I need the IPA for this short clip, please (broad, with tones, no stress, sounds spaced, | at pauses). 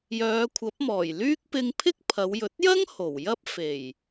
j œː˨˧ kʷʰ ɐ˨˥ p̚ m ɔː˨˩ j l yː˥ k̚ p ɪ˧ ŋ pʰ ɪ˥ k̚ pʰ ɐ˨˧ w j ɵ˨˥ t̚ j ɐ˥ ŋ h o˨˩ w j ɐ˥ p̚ f e˨˩ j